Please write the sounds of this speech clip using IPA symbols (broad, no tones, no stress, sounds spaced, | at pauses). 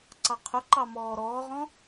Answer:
ǀ ɑ qʰ ʊ ǃ ɑ m ɔː ɾ ɔː ʁ ɔ̃